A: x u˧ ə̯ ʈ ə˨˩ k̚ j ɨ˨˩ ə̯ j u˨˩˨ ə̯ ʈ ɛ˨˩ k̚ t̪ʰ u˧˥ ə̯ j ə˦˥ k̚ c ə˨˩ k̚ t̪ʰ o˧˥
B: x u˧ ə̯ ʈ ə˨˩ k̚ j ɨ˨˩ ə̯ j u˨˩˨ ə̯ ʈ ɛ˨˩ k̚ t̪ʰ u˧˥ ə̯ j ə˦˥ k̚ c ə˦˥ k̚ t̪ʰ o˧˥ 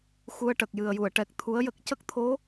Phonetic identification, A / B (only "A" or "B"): B